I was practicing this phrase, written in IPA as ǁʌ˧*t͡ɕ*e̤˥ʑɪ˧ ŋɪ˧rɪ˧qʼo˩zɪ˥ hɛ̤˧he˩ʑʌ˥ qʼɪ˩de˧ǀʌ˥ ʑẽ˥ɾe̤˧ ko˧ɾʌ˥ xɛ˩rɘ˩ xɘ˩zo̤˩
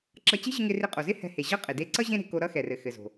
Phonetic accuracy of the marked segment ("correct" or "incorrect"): correct